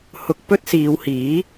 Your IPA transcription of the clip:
h ʊ˨ k̚ p ɵ˥ t̚ s iː˨˧ w h iː˨˥

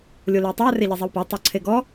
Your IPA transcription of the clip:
lʲ o l e tˤ a r e ʎ i zˤ i w p a tˤ o ǀʰ e ɡ ɔ

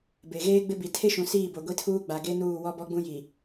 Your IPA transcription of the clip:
b e˨ ɣ eː˦ ɡ͡b ɪ˦ b i˨ tʰ e˦ ʃ ũ˨ s iː˦˨ b o˨ ɡʷ i˦ tʰ uː˦ ɡ͡b a˨ ɡ e˦ n uː˦˨ w ɔ˦ b ɔ˦ ɡ͡b ũ˦ j i˨

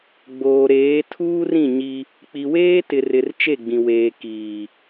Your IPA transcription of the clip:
ɡ͡b oː˨ ɾ eː˨˦ tʰ uː˦ r ĩ˦˨ ɲ i˦ | k͡p i˨ w eː˦ t ɪ˨ r ɪ˨ r t͡ʃ e˦˨ ɡ͡b ĩ˨ w eː˨ k iː˨

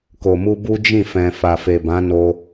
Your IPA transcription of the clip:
k o˨ m u˧ b u˦ d͡ʒ ĩ˦˨ f ɛ̃˨ f a˨ f e˨ b ã˨˦ n o˧

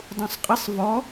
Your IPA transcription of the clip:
dˤ ũ sˤ qʼ ɪ sˤ v ɔ

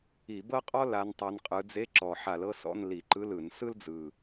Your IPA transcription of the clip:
i˧˩˧ b ɤ˥ qʼ ɔ˥ l a˨˦ n tˤ a˨˦ n qʼ ɯ˨˦ d͡z e˧˥˧ ǁ ɔ˨˩ ħ a˧˩˧ l ɤ˥ s ɔ̰˧˥˧ n l i˧˩˧ ǃ ɯ˧˥˧ l ɯ˧˩˧ n s ɯ˥ l d͡z ɯ˨˩

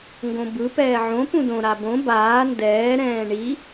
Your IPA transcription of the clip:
ŋ ɡ õ b ɯ p ɛː ʕ õ p ũ d õ ɾ a b õ b aː n d ɛː ɾ ɛ̃ː ɳ i

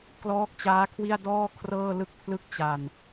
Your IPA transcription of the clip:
k l ɔː˦˥ k̚ t͡ɕ aː˦˥ kʰ w i˥˩ a̯ d ɔː˥˩ kʰ r ɤː˥˩ l ɯ˥˩ k̚ pʰ l ɯ˥˩ k̚ t͡ɕ a˧ n

